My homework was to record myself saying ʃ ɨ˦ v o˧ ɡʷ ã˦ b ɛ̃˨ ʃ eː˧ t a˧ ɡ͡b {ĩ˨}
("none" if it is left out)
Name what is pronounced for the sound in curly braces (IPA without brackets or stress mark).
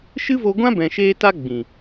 ĩ˨